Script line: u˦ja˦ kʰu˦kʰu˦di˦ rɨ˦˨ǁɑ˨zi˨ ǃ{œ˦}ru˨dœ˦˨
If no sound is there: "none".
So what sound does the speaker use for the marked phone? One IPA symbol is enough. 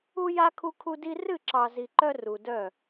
œ˦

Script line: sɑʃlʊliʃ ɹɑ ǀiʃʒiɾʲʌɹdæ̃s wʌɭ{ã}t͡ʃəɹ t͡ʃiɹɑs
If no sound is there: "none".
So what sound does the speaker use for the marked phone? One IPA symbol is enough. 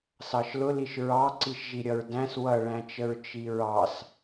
æ̃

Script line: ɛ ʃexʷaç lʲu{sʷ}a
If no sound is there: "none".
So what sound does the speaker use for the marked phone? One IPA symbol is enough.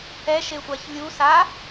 s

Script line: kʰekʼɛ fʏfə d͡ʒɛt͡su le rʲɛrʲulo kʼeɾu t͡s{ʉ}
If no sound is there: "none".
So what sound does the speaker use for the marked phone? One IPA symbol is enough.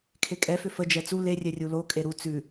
ʉ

